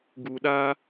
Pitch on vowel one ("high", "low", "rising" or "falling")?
low